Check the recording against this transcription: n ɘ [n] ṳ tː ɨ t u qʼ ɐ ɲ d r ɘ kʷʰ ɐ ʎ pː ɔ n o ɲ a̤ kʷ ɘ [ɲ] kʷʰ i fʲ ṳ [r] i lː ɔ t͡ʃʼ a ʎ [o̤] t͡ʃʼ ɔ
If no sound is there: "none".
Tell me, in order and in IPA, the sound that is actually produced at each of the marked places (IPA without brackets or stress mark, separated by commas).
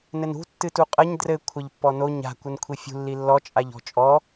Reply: n, n, lː, ɔ̤